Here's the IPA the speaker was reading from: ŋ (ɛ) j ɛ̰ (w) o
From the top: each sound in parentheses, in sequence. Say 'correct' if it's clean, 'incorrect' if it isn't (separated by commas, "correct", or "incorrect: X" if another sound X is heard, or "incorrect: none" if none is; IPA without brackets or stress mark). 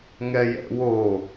correct, correct